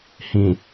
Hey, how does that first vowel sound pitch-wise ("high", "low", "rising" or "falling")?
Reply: low